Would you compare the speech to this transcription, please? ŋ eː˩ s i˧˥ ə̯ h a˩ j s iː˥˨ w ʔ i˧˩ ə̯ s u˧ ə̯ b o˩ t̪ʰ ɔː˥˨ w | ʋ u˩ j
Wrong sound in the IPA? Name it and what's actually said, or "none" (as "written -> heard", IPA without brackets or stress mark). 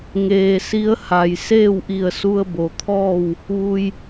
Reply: iː˥˨ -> eː˥˨